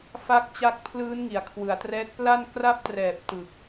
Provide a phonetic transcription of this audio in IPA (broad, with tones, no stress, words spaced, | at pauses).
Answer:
fa˦˥k̚t͡ɕa˦˥k̚pʰlɯː˦˥n ŋi˩˦a̯kʰwɯ˩˦a̯trɛː˦˥t̚ pla˥˩n kra˥˩p̚trɛː˨˩p̚ tɯ˨˩k̚